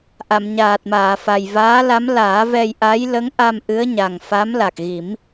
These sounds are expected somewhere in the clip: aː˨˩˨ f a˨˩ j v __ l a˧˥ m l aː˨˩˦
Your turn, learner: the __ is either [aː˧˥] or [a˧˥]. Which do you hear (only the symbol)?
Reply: aː˧˥